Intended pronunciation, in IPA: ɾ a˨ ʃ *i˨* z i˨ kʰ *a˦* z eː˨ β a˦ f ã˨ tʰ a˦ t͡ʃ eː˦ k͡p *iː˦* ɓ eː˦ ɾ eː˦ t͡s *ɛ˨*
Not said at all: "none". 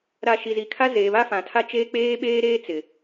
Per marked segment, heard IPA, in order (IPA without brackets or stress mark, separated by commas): i˨, a˦, eː˦, ɪ˨